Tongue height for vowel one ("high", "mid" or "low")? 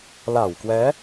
low